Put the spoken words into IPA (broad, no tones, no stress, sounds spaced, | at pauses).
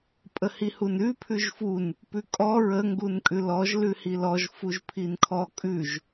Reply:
pʼ ə h i h u n ʉ pʰ ʉ ʒ f u n | p ʉ kʼ ɔ ɹ ə ŋ ɡ u n kʼ ʉ l ɔ ʒ l ʉ h i l ɔ ʒ f u ʒ pʰ i n kʰ ɔ kʼ ʉ ʒ